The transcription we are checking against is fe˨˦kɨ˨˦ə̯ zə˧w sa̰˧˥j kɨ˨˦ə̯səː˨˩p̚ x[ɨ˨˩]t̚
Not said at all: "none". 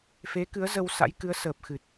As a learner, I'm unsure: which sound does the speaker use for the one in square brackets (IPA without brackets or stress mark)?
ɨ˨˩